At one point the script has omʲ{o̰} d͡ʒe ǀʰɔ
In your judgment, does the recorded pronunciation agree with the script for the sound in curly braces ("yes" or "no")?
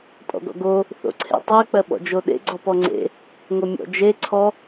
no